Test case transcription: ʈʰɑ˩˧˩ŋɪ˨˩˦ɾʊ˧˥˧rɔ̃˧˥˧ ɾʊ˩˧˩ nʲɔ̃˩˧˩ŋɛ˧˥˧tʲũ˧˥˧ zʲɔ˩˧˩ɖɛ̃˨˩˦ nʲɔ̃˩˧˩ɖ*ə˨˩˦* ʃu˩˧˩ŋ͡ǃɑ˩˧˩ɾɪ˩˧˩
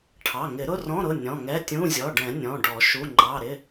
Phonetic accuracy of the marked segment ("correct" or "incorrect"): incorrect